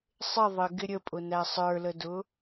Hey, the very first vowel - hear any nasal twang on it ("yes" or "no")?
no